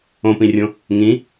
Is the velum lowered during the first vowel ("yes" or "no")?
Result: yes